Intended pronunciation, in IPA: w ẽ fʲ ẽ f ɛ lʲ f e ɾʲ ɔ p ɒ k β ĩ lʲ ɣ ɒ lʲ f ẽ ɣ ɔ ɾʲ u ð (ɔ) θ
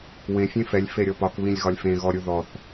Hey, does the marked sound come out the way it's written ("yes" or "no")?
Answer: yes